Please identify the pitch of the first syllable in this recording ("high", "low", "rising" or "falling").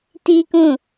high